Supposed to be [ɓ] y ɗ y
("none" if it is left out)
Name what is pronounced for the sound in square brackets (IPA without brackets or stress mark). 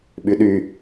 ɓ